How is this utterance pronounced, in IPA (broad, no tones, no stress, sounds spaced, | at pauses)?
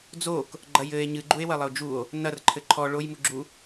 d͡z o k | ɡ͡ǃ ɐ j ɘ e̯ ɲ ɨ ɡ͡ǃ u e̯ w ɐ lˠ ɘ o̯ d͡ʒ u o̯ | n ɐ r ǃʰ ɘ ǃʰ ɔ ɭ o j m u ɡ͡ǁ u